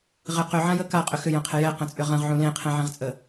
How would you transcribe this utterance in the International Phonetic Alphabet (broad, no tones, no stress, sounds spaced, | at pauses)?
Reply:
ʁ ɪ q ʏ ʕ ã j ə k a qʼ ʏ x ʏ j ə̃ qʰ ɪ j ɛ q ə̃ t͡sʼ ʏ ʁ ə̃ ʁ ʕ ũ l ẽ qʰ ɛ̃ ʕ ɛ̃ ʁ t͡sʼ ə